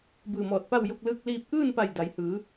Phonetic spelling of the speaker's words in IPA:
b ɯː˧˩ m ɔː˧˩ t̚ p a˥˨ w j o˧ k̚ l ɯː˧ k̚ l iː˧ p̚ ʔ ɯː˥˨ n p a˧˩ j d a˩˧ j h ɯː˩˧

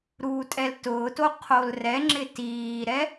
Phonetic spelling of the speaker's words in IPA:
ɾ uː tʼ ɛ l t ʊː t o qʰ o l r ɛ ŋ͡ǁ ɪ t iː ɾ ɛ

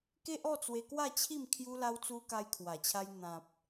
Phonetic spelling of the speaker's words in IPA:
k e˦ ʔ ɔ˥˧ t͡s w e˧ k w a˥˧ t͡ɕʰ i˥˧ m kʰ j u˦ l a˦ w t͡s u˦ k a˧ j kʰ w a˨˩ t͡ɕʰ a˧ j n̪ ã˨ p̚

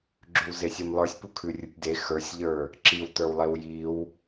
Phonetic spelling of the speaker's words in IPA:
ɡ͡ǁ ʉ w z e sʲ e m lˠ ə˞ sʲ p u kʰ ʉ rʲ u tʲ d e x ə˞ sʲ ʎ ə˞ | ǁ i w t ə˞ w lˠ e w j i w

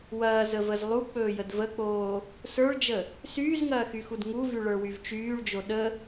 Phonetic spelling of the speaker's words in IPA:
w ɐː z ə v ə z lˠ u k͡p ɵː j ə d v ə k͡p oː | s ə˞ ɭ d͡ʒ ə | s yː z ŋ ɐː x y x u d ŋ u v y ɭ ə˞ w y v t͡ʃ yː ɭ d͡ʒ o ɗ ə

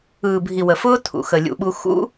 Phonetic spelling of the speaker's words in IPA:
ɯː˨ bʱ i˨ w ə˨ f ʊː˦ tʰ ṵ˨ x ə˨ lʲ ṵ˨ ɓ u˧ x ṵ˦

